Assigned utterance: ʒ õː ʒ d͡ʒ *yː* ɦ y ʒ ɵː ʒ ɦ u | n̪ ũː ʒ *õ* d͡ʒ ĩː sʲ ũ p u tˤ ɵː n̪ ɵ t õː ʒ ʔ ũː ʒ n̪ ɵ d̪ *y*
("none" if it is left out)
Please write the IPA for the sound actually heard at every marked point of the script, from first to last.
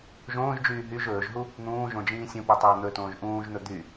yː, õ, y

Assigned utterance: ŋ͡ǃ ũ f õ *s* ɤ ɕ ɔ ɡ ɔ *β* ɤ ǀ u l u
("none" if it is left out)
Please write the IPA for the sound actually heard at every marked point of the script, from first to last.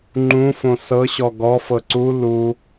s, f

